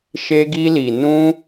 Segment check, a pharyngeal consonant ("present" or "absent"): absent